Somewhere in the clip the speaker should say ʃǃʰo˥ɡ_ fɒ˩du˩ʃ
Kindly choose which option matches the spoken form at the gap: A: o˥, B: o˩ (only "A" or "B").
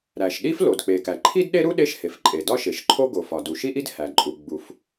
B